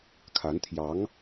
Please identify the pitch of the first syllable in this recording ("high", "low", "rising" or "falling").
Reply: rising